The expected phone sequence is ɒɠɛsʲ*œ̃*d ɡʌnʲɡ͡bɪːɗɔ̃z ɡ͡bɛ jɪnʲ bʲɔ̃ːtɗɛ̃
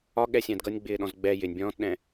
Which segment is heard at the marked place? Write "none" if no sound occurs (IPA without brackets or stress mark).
æ̃